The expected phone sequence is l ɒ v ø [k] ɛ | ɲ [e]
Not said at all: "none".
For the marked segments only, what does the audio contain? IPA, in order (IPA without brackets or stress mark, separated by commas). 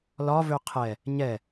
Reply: qʰ, ɛ